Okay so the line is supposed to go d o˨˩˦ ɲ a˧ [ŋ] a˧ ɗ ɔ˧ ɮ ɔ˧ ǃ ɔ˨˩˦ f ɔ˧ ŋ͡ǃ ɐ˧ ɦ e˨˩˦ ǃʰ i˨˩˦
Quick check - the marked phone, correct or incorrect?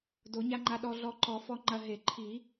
incorrect